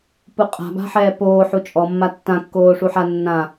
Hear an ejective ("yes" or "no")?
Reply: yes